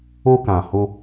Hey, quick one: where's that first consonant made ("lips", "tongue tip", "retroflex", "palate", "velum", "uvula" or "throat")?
velum